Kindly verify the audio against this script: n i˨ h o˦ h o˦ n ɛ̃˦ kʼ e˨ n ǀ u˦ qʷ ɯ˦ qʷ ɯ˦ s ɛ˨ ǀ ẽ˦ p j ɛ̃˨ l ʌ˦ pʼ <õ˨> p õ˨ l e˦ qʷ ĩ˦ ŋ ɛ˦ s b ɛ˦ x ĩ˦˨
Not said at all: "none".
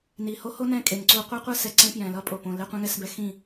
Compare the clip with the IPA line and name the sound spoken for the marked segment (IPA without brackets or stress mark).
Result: o˨